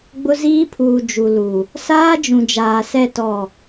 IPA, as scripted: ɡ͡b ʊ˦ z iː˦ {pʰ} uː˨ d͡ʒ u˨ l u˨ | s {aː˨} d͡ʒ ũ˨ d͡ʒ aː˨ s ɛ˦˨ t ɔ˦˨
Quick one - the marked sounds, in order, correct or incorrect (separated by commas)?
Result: correct, incorrect